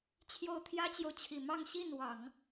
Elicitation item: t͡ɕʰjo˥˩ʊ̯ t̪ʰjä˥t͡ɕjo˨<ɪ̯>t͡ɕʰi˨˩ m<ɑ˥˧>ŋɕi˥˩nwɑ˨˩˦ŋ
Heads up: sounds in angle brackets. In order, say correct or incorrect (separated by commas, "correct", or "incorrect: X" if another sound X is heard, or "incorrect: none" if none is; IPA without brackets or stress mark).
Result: incorrect: ʊ̯, correct